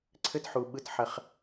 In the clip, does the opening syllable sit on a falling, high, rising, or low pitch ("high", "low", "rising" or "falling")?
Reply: high